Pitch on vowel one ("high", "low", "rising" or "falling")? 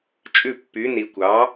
falling